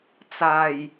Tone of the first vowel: low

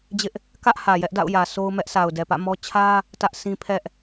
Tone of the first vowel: high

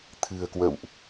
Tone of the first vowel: low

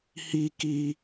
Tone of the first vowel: high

